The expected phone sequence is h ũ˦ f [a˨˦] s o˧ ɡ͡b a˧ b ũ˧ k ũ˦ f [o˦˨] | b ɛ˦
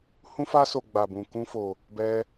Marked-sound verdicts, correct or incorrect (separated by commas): incorrect, incorrect